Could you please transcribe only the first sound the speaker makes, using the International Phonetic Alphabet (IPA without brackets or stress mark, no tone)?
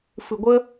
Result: f